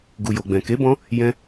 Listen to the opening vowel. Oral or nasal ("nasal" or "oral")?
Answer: oral